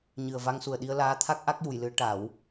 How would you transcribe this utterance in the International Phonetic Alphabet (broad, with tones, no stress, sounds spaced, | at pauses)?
ɲ ɨ˨˩ ə̯ v a˧ ŋ s u˨˩ ə̯ ɗ i˧ ə̯ l aː˧˥ t̪ʰ a˦˥ k̚ ʔ a˦˥ k̚ j u˨˩˨ j l ɨ˨˩˦ ə̯ ʈ a˨˩˦ w